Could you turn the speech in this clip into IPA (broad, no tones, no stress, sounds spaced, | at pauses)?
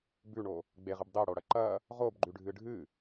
b ʉ ɳ o | ɡ͡b e ʁ ɨ b dˤ e ɽ o ɽ ɐ ǃ ɐ | ʁ o b ɡ͡ǃ ʉ ɖʱ ɨ ɖʱ ɨ